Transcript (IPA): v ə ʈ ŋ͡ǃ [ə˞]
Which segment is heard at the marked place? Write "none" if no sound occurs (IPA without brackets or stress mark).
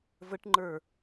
ə˞